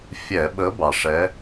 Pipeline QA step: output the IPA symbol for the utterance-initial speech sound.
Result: fʲ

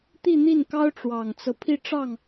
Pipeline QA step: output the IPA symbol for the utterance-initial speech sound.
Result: t̪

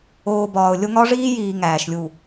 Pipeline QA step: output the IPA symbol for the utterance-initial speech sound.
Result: oː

